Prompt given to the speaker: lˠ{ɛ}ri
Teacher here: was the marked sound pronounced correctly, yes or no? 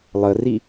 no